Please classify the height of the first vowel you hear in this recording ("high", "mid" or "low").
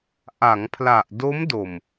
low